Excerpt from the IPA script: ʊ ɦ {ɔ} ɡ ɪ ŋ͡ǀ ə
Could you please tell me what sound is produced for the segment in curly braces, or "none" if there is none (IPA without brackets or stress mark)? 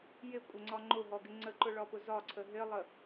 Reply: ɔ